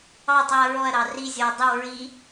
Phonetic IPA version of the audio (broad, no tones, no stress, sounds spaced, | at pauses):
ɑ tˤ i ɐ̯ ɹ ɔ ɐ̯ ɾ ɑ r i zʲ ɔ ɐ̯ dˤ i w ɹ i